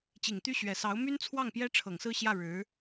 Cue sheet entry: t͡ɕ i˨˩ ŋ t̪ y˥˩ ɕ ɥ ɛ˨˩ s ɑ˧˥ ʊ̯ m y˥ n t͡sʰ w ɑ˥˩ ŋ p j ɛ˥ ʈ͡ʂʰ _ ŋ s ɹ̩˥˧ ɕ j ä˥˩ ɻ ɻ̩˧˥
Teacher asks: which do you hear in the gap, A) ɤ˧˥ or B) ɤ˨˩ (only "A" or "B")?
B